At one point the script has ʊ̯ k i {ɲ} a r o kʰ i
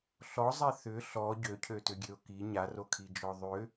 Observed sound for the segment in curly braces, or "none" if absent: ɲ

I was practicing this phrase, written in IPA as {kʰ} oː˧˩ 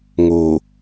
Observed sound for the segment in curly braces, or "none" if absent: ŋ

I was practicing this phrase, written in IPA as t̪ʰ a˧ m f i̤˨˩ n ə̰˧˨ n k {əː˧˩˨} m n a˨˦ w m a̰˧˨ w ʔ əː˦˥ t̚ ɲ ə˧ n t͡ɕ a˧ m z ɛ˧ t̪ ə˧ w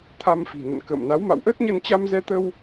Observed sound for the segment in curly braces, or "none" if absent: ə̰ː˧˨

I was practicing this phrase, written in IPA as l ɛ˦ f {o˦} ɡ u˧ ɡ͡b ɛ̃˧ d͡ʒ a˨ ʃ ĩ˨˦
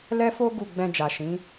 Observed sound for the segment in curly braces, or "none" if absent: o˦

